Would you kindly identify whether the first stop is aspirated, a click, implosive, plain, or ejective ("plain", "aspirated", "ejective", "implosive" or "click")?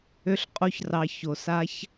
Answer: ejective